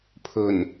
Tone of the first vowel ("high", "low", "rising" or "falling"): low